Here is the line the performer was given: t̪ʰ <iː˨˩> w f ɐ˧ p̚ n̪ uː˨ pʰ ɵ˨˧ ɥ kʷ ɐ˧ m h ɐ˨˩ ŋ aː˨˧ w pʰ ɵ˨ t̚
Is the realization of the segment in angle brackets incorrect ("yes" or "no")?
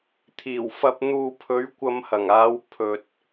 no